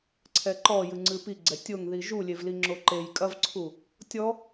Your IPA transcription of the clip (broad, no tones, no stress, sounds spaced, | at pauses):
ǀʰ ɛ ǃ ɔ j ɨ ŋ͡ǀ ɨ p i ɡ͡ǀ ɛ tʲ o ŋ ð i ʒ u lʲ e v l i ŋ͡ǁ o ǃ e j kʼ ɐ v ǀʰ u | tʲ ɔ